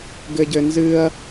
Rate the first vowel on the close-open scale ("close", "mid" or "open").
mid